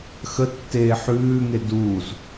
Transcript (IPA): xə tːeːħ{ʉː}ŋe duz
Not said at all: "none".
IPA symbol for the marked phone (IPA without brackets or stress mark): ʉː